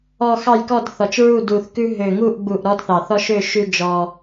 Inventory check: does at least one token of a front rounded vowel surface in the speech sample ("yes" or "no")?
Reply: yes